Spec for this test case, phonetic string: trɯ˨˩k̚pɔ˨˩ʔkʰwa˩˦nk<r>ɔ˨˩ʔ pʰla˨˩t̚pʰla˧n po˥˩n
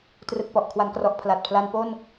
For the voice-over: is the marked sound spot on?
yes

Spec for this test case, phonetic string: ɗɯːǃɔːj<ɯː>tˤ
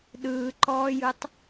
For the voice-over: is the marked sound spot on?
no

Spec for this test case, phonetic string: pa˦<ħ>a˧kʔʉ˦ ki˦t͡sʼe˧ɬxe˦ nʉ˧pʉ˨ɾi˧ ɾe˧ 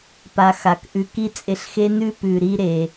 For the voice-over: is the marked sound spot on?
no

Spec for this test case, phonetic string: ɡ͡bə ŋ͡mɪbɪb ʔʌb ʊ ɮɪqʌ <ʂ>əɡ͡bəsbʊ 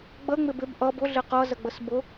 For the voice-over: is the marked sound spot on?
no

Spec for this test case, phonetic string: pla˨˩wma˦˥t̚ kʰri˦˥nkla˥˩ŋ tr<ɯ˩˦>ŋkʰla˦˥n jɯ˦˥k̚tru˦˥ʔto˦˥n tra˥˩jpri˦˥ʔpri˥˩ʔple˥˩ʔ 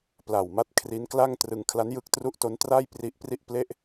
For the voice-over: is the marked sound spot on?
no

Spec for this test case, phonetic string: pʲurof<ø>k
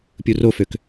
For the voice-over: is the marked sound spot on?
yes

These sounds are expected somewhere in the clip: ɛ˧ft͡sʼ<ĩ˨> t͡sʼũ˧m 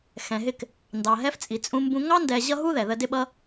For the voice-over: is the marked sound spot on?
no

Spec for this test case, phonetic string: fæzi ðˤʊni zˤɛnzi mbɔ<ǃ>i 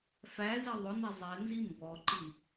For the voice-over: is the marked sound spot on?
yes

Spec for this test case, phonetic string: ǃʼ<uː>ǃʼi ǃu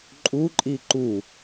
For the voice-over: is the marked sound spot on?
no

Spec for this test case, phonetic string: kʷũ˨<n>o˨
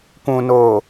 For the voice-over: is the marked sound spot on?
yes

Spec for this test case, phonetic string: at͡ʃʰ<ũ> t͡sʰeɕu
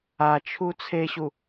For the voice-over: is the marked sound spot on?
no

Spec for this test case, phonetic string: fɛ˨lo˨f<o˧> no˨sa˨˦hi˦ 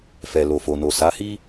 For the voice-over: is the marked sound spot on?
no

